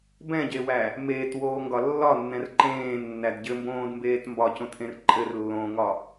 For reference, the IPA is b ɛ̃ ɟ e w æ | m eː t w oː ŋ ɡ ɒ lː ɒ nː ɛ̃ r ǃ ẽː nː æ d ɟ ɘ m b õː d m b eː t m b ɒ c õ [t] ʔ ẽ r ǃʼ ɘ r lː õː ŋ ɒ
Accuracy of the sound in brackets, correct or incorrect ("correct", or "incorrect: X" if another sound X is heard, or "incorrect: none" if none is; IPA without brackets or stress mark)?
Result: correct